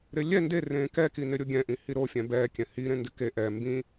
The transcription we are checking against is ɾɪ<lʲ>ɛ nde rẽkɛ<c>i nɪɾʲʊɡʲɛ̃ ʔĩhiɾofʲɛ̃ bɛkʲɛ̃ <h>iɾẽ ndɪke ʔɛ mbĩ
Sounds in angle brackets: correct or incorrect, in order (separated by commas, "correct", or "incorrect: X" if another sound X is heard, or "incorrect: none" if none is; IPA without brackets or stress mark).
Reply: correct, incorrect: k, correct